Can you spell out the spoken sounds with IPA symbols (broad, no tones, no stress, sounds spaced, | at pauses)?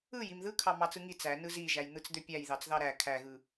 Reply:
ɯ j i m ð ɯ kʰ ɑ m ɑ t͡s ɯ ŋ i t͡s æ n ɯ z i ʒ æ j n̪ ɯ t͡s d̪ ø pʲ æ j ð ɑ t͡s ð ɑ ɾ æ kʰ æ ɣ ɯ